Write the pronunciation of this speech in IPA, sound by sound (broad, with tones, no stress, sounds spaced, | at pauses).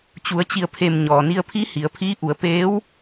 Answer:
t͡ɕ u˩˧ ə̯ t͡ɕ i˧˩ ə̯ pʰ e˧˩ m ɲ ɔː˩ n i˧ ə̯ pʰ i˧˥ h i˩˧ ə̯ pʰ iː˧˥ ʔ u˩˧ ə̯ p eː˧˥ w